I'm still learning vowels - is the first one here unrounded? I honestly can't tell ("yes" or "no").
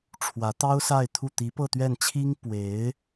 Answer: yes